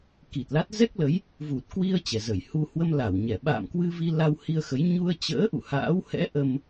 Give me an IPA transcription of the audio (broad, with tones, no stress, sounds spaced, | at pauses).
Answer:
k i˨˩ t̚ l a˦˥ t̚ z ɛ˦˥ k̚ l ə˨˦ j | v u˨˩ t̚ k w i˧ ə̯ t͡ɕ ɛ˨˩ z ə˧˩ j h u˧ h w ə˧ m l a˧˩ w ɲ ɛ˧˩ ɓ a̰ː˧˨ m k w ɨ˧ v i˧ l a˧ w h i˧ ə̯ x ə˨˦ j ɲ u˧ ə̯ t͡ɕ ə̰ː˧˥ ʔ ṵ˧˨ h a̰ː˧˥ w h ɛ̰˧˥ ʔ ə˧ m